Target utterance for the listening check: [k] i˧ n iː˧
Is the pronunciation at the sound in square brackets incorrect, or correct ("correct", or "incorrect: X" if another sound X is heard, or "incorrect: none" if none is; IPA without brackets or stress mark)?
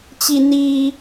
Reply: incorrect: t͡ɕ